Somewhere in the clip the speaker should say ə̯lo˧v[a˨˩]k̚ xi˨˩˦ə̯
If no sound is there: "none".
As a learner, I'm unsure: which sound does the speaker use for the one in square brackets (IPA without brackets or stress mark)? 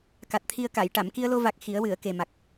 a˨˩